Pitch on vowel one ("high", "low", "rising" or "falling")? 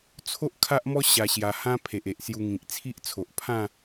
high